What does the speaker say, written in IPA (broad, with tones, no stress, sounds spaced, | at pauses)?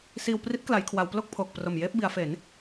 s iː˧ w p r i˦˥ t̚ k l a˩˦ j kʰ w a˩˦ w p l o˥˩ k̚ pʰ oː˨˩ k̚ p r o˨˩ m j eː˦˥ p̚ b i˩˦ a̯ f e˩˦ n